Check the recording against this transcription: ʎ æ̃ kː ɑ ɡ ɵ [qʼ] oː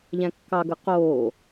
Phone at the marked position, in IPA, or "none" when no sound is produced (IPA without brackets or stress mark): q